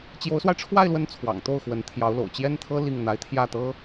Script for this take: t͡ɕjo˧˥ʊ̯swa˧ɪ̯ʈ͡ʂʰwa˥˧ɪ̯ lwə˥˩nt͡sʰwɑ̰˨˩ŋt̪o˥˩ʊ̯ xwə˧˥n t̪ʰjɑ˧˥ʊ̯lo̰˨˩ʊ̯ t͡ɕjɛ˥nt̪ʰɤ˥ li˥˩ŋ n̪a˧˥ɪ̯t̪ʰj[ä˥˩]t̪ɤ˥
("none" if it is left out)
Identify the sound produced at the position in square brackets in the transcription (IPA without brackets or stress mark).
ä˥˩